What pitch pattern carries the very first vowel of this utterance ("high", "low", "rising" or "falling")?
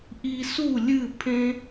low